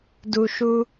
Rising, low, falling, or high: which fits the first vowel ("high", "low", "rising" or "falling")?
low